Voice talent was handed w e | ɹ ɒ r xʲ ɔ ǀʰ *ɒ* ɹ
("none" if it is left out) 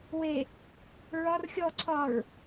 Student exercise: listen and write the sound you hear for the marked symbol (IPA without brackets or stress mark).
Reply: ɒ